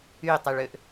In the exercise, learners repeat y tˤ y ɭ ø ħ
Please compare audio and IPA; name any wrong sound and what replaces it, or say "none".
ħ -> ʔ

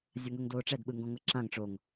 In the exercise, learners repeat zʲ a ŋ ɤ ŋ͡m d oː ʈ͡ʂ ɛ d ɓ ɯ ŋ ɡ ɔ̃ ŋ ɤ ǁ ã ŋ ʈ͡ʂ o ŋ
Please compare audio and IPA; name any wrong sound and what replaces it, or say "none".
ŋ͡m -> ŋ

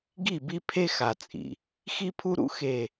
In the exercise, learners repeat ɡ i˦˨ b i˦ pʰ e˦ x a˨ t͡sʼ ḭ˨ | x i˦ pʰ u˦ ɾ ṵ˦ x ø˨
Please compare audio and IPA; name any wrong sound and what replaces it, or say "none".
ø˨ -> e˨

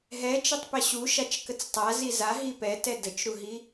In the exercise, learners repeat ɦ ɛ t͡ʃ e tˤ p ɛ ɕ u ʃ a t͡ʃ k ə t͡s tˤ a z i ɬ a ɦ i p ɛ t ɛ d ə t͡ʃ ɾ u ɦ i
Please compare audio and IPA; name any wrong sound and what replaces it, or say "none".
ɬ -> z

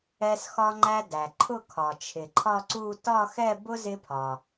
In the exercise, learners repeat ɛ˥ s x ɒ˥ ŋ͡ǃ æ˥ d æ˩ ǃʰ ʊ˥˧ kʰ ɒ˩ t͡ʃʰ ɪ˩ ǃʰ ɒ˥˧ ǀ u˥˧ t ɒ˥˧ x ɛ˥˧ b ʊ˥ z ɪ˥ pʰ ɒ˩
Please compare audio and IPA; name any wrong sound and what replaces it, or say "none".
none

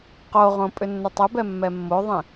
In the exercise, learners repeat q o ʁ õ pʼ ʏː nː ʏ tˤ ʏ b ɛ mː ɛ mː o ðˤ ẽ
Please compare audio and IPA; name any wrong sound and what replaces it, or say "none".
ʏː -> ʏ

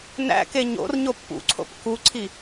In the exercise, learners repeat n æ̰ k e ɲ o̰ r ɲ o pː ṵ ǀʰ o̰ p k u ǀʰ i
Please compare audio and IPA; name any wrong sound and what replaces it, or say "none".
none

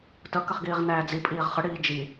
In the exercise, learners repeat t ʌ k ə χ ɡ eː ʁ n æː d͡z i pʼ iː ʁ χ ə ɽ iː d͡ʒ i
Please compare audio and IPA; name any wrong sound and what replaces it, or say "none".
eː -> iː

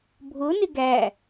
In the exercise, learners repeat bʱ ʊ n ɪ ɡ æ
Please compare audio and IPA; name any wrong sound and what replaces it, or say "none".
none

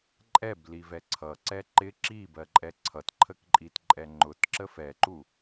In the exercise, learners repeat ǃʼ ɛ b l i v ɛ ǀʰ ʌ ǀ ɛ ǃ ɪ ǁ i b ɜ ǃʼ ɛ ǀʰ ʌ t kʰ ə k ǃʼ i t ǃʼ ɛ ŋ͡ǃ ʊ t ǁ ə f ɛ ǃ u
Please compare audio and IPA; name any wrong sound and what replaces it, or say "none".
kʰ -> ǃʰ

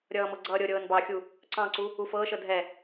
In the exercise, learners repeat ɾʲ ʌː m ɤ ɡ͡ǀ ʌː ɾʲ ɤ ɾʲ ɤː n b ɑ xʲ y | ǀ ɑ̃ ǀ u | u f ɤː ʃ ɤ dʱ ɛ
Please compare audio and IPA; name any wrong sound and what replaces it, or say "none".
y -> u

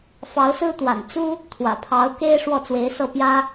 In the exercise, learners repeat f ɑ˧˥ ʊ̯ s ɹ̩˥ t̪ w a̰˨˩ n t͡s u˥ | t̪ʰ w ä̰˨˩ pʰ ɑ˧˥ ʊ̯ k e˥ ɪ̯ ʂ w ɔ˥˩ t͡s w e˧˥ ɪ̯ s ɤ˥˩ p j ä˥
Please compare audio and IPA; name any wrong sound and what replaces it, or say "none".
none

